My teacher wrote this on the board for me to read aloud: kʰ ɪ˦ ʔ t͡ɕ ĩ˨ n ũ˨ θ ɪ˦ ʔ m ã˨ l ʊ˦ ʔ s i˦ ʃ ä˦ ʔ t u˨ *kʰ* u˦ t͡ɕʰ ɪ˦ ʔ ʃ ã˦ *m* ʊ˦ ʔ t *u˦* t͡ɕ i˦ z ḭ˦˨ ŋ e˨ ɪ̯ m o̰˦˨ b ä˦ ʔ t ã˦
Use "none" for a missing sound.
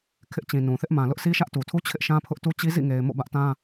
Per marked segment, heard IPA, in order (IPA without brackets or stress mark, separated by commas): tʰ, pʰ, u˦